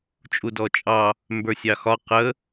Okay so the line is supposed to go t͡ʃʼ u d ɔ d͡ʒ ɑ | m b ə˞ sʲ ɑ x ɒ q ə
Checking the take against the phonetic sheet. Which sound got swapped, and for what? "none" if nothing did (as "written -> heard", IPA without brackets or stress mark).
d͡ʒ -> t͡ʃʼ